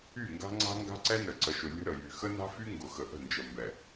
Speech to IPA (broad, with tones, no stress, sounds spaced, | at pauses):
y˦˨ ŋ ɡ a̤˦ ŋ͡ǀ a̤˦ ŋ ɡ a̤˦ ǀ ɛ˦ n ə˨ ǀ ə˨ ʃ ʊ˨ lʲ ə̤˦ ɾ ə˨ j y˨ x ə˦ n a̤˦ f y˦ ŋ ɡ ʊ˨ x ə˨ ʔ ə̤˦˨ n d͡ʒ ə˨ m b ɛ˨